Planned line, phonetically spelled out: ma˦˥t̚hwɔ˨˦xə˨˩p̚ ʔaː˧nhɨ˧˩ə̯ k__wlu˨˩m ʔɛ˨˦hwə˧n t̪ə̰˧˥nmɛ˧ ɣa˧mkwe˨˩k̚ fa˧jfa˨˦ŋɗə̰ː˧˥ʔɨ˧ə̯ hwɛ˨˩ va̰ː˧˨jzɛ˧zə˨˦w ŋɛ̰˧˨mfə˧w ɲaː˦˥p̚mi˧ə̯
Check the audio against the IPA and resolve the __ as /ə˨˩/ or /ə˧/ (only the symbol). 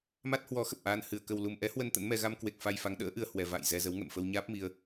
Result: ə˨˩